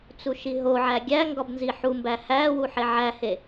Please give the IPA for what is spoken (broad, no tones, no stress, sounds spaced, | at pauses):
t͡s u ʃ i ɦ o ʕ æ ɡʲ æ ŋ ɡ ɒ b n z i ħ u m b æ h æ w u ħ e ʕ æ h e